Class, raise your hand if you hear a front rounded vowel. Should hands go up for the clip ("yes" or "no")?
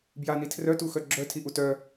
yes